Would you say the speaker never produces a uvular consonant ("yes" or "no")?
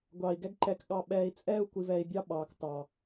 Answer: yes